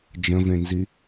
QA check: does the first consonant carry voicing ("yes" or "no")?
yes